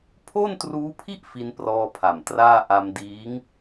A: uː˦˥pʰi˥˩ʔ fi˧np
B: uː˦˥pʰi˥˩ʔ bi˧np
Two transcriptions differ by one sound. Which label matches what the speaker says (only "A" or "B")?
A